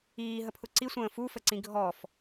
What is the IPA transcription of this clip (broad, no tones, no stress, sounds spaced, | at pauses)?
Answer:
iː ɦ ə pʰ ʊ ǀ i sʷ ə̃ː f u f ə ǀ ĩ ɡʱ ɔ f